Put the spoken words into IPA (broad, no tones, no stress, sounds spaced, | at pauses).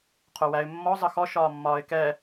qʰ o w æ ɪ̯ mː ɔ zˤ ə x ɔ ʃ ɒː mː ɒː ɪ̯ k ɛ